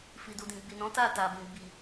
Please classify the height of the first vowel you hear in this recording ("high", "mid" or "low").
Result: high